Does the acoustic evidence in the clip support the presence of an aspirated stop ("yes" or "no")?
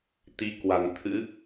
yes